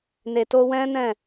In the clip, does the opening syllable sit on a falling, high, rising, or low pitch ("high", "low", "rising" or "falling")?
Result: low